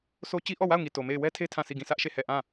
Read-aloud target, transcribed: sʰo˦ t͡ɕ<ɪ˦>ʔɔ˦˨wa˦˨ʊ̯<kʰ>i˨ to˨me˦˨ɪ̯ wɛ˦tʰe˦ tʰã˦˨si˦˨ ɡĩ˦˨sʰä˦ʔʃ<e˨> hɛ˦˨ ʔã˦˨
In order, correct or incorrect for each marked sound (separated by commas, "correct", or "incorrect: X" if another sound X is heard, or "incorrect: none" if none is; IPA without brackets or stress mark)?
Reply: incorrect: i˦, incorrect: ŋ, incorrect: e˦˨